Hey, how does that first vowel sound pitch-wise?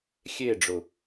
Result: falling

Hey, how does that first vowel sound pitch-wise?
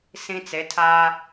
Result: high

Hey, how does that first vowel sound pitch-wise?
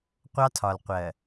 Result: high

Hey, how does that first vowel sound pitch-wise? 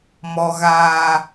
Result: low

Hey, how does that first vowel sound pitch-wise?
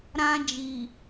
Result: high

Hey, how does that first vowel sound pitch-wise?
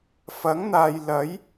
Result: rising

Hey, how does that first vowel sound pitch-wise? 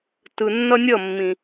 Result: low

